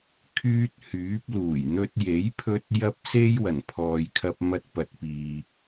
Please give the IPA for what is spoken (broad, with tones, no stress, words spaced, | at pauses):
kʰyː˥t̚hyː˨˥p̚ luː˨˩jn̪ɵ˧t̚je˨˥jpʰɵ˧t̚ jɐ˥p̚se˥j wɐ˨˩npʰɔː˨jkʰɐ˧p̚ mɐ˧t̚pɐ˨t̚piː˨